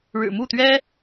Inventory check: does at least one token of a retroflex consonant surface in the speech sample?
yes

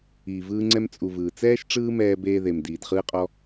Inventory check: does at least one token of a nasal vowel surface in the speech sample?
no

